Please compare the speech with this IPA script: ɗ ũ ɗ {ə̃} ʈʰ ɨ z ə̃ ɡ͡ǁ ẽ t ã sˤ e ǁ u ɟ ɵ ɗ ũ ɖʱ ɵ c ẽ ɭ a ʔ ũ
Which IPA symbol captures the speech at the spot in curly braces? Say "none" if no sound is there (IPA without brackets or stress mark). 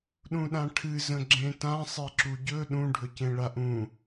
ã